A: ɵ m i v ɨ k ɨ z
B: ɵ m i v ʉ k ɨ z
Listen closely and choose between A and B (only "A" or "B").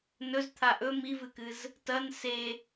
A